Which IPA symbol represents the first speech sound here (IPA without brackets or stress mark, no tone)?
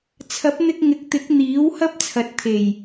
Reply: t͡sʰ